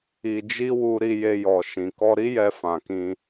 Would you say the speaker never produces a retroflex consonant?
yes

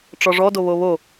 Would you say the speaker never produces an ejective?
yes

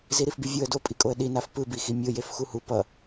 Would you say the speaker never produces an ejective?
no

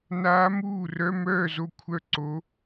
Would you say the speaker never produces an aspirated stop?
no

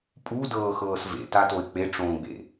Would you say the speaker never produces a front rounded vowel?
yes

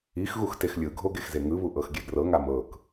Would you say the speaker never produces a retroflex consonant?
yes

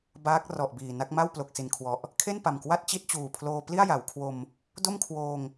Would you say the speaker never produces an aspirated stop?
no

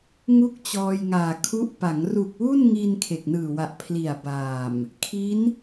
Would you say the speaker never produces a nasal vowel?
yes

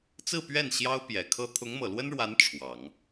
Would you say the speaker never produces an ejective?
yes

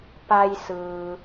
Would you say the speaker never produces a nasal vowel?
yes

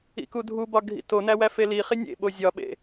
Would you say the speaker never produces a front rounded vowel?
yes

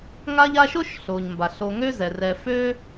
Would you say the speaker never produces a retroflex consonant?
yes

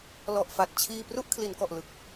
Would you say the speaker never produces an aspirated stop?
no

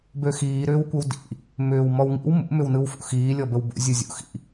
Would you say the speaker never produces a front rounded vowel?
no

